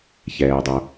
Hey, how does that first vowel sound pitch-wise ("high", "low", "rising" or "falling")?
low